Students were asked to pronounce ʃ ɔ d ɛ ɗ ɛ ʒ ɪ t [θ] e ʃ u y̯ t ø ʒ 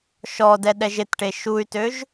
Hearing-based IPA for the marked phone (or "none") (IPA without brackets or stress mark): ʈ